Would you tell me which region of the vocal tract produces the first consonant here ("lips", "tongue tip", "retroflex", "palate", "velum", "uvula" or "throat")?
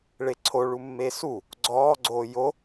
retroflex